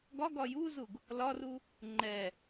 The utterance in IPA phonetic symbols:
ɡ ɒ ɡ ɒ j u z u ɡ | l ɒ r u | ŋ͡ǃ ɛ

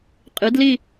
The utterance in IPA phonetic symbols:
qʼ i˨˥ d l i˥˧

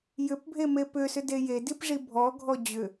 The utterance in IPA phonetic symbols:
j ʏ p bʱ e m e p ʏ s ʏ d e j e d i p ʐ i bʱ ɔ ɡʱ ɔ d͡ʑ ʏ

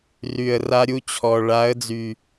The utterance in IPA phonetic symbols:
r y˨ ə̯ r a˧ ɾʲ u˧ t͡ɕʰ ɔ˨ ɭ a˨˦ ə̯ d͡z y˨

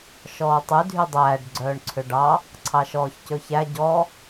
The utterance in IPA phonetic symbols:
ʃ ɔː tˤ y dʱ y dˤ æː ɖ ɡ͡ǀ œː ɳ ǀʰ ø ɖ ɑ | ǀʰ ɑ ʃ ɔː ç c ɵ ç æ ɟ ɔ

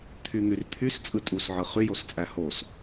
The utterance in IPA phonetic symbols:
t̪ʰ y n̪ y r t̪ʰ y s t͡sʼ ɯ tʼ u s ʕ ɯ χ y j o s t͡sʼ æ h o s

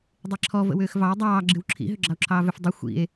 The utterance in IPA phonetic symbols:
dˤ e ǁʰ ɔ v ə̰ w ʏː x v ɑ e̯ dˤ ɑː ɡ͡ǁ ɨ w ǁʰ ḭ ɦ ʏ ɡ͡ǁ ɑ o̯ ǁʰ ɑː v ʏ f dˤ ʏ xʷ ḭ e̯

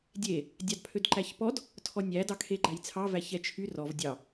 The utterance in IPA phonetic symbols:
dʲ e | dʲ ɑ d pʰ ø d ǃ æ ç p ɔ d | tʰ ɔ nʲ æ d ɑ kʰ e ɡ͡ǃ æ j t͡sʰ ɑ v æ ç ɛ t͡ʃʰ y r ɔ v dʲ ɑ

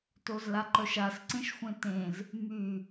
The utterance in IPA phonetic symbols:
t o z l a ǃ œ ʃ a s ǀ ẽ ʃ xʷ ẽ t ẽ z | m y

